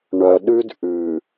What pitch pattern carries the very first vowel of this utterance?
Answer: low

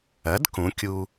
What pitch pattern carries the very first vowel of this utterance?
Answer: rising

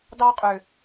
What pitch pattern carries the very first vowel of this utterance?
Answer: high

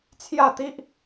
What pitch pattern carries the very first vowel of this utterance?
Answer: falling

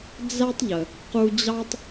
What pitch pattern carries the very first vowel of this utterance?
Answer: high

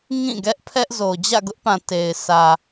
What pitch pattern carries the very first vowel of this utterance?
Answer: falling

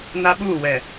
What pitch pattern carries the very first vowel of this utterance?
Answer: high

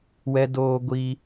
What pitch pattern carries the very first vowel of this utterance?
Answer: high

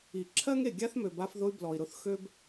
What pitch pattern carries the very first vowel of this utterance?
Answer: low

